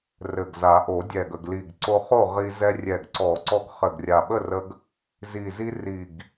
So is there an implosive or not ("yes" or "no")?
yes